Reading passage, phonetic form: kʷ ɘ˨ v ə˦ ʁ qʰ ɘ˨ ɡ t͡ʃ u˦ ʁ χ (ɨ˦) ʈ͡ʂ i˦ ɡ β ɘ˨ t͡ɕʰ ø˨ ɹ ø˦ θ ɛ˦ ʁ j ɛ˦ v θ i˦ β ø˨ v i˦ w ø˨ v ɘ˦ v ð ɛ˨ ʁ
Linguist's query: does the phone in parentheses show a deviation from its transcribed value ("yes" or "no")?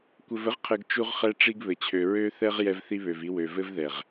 yes